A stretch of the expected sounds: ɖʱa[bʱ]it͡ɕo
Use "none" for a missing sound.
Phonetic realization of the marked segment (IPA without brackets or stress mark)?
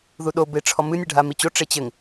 m